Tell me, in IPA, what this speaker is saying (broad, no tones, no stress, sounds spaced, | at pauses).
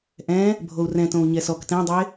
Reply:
ʔ ɛ̃ | bʱ o u̯ r ɛ̃ t õ u̯ ɲ ɛ s ɔ k t ɛ̃ dˤ e